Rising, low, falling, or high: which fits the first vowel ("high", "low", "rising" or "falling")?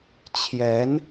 rising